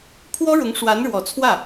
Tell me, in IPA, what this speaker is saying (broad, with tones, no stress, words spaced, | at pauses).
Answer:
pʰwɔ˥ɻʊ˧˥ŋ ʂwa˧˥nɻwɔ˨˩t͡sʰwä˥˩